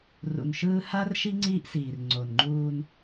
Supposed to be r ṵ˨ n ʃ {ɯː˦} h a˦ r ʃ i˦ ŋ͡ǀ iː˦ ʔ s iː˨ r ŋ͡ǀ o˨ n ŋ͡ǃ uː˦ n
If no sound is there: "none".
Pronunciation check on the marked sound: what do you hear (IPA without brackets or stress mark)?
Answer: ɯː˦